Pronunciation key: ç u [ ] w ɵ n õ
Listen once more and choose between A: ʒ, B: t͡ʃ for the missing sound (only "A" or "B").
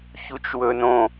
B